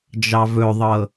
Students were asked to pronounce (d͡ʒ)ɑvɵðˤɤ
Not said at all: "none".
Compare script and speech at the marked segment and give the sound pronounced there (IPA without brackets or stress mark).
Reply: d͡ʒ